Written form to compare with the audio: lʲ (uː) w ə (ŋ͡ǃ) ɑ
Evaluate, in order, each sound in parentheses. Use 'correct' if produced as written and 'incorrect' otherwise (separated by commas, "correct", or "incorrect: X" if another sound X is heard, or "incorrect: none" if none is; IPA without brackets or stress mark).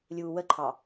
correct, incorrect: ǃʰ